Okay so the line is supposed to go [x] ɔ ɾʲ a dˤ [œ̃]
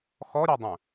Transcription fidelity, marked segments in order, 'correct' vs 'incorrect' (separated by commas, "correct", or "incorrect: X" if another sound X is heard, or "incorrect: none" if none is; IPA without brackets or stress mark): correct, correct